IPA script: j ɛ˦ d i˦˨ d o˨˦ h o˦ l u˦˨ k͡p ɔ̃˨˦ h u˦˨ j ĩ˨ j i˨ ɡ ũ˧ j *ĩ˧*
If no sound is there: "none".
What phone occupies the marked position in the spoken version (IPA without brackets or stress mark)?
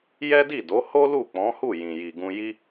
i˧